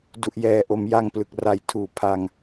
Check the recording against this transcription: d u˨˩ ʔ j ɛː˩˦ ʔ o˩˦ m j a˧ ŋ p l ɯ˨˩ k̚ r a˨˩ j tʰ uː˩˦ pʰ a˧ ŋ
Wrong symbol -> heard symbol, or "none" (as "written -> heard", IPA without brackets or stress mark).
none